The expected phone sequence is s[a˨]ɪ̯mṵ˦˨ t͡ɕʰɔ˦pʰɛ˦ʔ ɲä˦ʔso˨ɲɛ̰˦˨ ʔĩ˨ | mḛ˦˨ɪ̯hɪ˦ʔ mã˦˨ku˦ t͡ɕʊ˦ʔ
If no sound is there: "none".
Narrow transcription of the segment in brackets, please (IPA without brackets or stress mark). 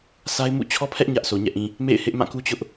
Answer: a˦